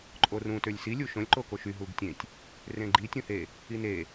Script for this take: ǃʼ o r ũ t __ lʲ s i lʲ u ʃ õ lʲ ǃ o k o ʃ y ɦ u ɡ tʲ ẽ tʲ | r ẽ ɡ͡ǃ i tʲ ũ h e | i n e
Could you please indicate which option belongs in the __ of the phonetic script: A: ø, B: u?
A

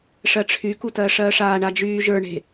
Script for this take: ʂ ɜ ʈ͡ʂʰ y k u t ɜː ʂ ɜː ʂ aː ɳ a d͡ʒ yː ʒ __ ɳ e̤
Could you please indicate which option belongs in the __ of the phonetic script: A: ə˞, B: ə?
A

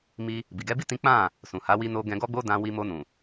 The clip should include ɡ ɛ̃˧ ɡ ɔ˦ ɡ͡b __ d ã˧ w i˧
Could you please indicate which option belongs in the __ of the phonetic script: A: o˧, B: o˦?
B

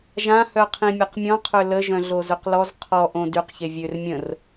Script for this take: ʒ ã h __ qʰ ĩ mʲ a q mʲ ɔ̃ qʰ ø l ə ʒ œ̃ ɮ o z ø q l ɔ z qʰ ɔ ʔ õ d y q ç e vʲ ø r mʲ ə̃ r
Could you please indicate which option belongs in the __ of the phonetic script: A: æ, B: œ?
B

